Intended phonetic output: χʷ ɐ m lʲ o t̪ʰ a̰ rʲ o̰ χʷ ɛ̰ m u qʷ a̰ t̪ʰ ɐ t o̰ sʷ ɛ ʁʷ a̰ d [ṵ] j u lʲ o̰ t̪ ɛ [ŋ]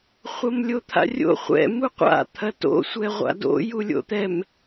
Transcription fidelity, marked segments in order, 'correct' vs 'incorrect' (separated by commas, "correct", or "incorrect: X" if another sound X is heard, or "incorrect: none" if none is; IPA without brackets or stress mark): incorrect: o̰, incorrect: m